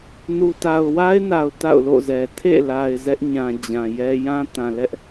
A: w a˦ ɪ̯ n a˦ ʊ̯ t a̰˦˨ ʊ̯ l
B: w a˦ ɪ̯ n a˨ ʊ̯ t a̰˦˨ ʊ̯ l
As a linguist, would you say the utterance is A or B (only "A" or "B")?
B